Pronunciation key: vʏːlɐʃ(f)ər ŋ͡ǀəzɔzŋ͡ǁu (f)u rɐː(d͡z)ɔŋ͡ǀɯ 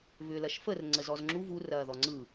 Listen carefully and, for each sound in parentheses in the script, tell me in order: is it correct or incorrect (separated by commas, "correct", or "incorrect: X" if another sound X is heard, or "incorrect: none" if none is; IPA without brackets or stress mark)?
correct, incorrect: v, incorrect: ð